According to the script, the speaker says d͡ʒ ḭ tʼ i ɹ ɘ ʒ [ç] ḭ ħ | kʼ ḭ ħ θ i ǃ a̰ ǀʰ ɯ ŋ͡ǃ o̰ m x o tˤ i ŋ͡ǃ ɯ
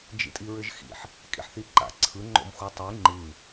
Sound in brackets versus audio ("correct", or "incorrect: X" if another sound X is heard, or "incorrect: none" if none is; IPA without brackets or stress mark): incorrect: x